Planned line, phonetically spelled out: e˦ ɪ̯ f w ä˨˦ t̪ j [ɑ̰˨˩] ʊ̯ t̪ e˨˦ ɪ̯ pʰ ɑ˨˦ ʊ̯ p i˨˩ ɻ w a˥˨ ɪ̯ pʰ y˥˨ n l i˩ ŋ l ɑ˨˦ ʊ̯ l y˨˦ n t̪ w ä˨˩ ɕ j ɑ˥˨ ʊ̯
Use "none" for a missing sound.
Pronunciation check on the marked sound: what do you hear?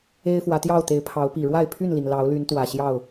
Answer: ɑ˥˨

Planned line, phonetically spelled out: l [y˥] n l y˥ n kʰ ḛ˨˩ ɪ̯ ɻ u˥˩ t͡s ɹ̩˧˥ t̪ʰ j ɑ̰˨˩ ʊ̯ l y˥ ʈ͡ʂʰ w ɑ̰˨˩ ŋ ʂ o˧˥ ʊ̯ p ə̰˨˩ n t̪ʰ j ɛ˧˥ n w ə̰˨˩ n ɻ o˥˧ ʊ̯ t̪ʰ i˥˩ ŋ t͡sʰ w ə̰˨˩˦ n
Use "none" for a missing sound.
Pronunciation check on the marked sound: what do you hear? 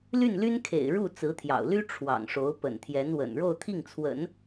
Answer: y˥˩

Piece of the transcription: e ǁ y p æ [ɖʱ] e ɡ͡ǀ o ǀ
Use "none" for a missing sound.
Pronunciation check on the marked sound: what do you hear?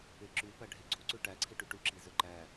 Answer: ɖʱ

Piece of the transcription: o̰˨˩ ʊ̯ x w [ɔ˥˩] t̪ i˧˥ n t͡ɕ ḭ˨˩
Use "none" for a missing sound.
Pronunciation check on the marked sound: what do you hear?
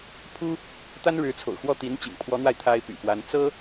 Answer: ɔ˥˩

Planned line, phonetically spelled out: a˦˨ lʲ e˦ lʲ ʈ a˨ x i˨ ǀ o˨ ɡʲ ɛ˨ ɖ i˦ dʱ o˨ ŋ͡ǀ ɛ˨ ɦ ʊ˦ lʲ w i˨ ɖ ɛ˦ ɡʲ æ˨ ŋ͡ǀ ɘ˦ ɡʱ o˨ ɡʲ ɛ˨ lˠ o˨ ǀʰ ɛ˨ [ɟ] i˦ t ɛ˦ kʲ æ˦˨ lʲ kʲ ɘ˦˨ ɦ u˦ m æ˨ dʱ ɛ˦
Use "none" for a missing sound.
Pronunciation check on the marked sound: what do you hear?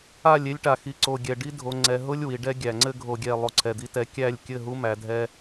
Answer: d̪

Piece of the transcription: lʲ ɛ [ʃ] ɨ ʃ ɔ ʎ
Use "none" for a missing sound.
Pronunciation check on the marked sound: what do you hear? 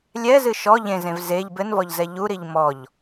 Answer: z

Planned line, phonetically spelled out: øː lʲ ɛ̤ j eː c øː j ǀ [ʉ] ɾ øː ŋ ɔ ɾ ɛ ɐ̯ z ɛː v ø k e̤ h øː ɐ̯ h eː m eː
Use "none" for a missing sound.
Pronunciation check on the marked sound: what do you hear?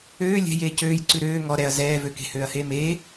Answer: ʉ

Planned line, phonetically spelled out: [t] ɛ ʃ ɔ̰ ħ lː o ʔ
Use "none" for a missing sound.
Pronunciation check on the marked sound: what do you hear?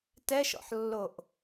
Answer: t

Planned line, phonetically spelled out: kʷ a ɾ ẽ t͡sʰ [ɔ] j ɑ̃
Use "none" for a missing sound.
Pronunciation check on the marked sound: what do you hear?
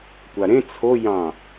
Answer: o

